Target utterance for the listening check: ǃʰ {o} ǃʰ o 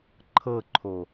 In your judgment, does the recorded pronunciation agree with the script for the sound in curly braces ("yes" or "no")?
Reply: no